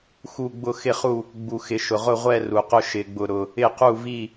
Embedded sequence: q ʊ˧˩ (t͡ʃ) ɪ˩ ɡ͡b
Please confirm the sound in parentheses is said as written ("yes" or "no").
no